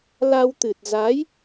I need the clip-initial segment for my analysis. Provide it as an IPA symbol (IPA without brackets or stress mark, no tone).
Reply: l